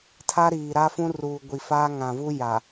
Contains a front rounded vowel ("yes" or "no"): no